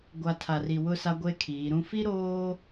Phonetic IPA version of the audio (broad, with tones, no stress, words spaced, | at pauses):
ɡʷa˨ tʰa˨ri˨wʊ˦sa˦ ɡʷe˦kʰiː˨˦ɾũ˦ fi˦ɾoː˦